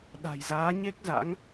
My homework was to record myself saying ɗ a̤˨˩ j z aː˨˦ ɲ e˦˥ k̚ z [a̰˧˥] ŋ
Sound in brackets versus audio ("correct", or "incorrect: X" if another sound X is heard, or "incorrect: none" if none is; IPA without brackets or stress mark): correct